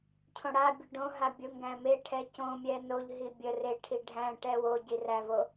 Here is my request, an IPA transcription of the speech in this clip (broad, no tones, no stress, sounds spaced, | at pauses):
cʰ õ ɽ a bʲ ʊ ɖ õ ɦ a bʲ ʊ ŋ ɡ æ̃ m e ʈʰ ɛ c õ mʲ ɛ n o ʎ ɦ i bʲ ə r e ʈʰ i ɖʱ æ̃ ʈ ɛ w o ɟ i r æ v o